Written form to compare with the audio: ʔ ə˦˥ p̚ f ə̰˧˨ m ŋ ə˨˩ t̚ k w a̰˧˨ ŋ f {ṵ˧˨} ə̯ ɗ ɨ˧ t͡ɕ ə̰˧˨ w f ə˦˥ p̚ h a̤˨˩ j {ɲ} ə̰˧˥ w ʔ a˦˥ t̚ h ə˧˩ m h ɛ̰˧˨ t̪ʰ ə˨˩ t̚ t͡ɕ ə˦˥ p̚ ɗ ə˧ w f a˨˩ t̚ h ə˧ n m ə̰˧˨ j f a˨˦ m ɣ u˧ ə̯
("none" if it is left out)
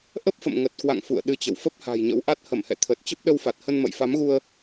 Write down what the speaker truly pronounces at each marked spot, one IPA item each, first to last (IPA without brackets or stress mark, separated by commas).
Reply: ṵ˧˨, ɲ